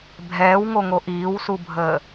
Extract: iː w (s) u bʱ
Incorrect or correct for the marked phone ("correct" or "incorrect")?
correct